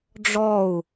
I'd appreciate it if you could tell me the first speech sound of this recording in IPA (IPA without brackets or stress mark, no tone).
ɖ͡ʐ